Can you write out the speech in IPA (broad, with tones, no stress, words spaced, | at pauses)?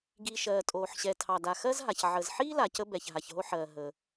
ɡiː˩ ʃɜː˩tʼoː˩ħ ɕɛ˩tʰɑ˩da˩ xɜ˥zɦa˩ç ʕəː˩zħiː˥la˩ cə˥bɛ˩ç ɦa˩çɦo˥ħɜː˩ ɦəː˩